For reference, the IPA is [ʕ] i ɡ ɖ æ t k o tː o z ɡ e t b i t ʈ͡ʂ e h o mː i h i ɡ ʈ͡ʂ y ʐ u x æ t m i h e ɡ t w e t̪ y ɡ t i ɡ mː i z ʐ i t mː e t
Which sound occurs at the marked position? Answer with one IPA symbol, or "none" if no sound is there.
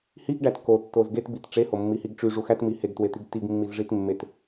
h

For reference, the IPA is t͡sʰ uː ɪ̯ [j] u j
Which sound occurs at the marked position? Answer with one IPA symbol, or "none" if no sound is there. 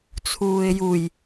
j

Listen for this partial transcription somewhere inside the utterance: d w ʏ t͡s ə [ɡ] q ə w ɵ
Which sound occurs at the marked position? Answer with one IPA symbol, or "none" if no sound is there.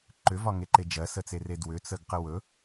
ɡ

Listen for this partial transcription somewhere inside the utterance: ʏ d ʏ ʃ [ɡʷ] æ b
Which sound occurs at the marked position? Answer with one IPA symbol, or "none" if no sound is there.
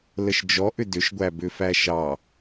ɡʷ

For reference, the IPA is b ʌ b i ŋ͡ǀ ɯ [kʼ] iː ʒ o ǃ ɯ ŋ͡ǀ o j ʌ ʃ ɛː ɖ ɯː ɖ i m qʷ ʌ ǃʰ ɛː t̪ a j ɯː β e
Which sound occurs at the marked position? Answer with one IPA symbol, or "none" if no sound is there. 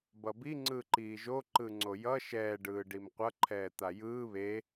ǃ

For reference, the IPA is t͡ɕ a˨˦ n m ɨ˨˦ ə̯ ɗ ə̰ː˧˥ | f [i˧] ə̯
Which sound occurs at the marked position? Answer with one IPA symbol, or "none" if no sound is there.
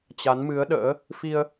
i˧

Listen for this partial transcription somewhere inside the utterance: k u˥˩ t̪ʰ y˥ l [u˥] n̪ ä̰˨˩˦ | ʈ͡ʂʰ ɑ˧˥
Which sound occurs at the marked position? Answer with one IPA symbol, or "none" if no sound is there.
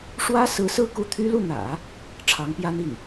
u˥˩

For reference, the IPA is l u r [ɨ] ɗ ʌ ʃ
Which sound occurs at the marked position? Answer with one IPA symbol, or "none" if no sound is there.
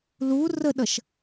ə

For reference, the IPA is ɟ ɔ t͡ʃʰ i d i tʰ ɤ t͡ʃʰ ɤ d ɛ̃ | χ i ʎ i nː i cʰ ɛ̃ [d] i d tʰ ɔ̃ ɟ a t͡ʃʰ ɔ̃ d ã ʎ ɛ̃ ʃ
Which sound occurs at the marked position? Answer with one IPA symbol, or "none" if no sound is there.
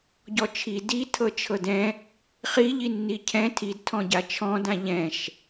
tʰ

